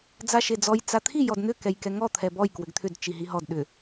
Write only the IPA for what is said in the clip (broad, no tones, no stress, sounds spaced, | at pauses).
d͡z a ʃ e d͡z ɔ j t͡s a t̪ʰ i j ɔ d n̪ ʏ k ɛ j k ɛ ŋ ɔ t̪ʰ ɛ b ɔ j k w ʏ ɡ t̪ʰ ʏ d t͡ʃ i ɦ i ɦ ɔ d ɗ ʏ